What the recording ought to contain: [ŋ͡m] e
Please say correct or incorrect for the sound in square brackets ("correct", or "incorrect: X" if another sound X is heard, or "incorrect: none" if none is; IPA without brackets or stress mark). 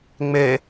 correct